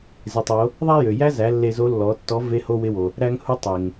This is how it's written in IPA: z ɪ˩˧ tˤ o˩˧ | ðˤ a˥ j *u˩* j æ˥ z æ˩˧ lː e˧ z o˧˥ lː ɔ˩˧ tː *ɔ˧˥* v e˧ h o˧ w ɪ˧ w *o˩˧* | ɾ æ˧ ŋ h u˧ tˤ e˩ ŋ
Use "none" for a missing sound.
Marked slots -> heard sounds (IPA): ø˩, ɔ˧˥, o˩

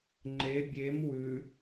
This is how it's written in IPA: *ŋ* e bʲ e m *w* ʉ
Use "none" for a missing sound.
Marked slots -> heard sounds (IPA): ŋ͡ǃ, w

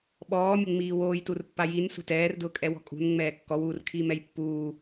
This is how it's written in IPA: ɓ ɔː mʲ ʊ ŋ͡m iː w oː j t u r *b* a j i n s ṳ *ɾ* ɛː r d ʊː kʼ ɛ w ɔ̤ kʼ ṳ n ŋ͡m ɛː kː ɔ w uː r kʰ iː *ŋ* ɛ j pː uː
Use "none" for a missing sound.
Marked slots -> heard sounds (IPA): pː, t, m

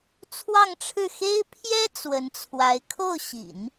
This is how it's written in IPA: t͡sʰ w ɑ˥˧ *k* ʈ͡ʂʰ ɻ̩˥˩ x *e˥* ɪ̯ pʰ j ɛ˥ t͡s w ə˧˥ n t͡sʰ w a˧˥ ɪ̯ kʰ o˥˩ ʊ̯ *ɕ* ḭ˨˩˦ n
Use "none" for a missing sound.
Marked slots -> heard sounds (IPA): ŋ, e˥, ɕ

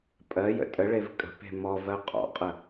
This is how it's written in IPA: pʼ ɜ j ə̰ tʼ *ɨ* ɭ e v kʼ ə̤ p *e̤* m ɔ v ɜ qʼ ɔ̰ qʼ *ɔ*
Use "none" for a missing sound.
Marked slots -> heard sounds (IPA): ə, e̤, ə

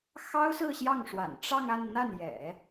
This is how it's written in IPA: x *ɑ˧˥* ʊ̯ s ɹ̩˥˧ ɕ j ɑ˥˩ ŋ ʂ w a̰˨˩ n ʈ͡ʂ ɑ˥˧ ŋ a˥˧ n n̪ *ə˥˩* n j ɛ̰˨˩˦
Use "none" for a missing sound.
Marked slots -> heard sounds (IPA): ɑ˥, a˥˩

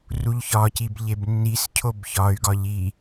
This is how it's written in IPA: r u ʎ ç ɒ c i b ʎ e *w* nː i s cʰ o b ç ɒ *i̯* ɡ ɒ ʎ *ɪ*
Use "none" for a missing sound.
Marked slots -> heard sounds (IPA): b, y̯, i

